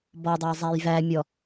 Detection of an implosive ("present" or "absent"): absent